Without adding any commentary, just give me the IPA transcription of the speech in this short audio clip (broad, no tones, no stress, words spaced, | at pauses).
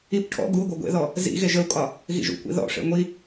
ip ʈʰɔ̰ ɡu ɡʷœɡʷḛðɔ | zḭ ɣeʒəu̯kʼɒ | ɣḭʒṵkʷḭ ðɔ̰ʂḛ ŋʷi